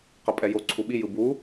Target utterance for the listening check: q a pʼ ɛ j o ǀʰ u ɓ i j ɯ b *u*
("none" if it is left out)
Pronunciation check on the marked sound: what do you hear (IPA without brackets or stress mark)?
u